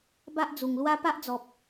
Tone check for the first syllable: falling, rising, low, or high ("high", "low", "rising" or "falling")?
high